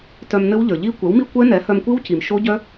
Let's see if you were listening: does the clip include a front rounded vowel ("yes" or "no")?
yes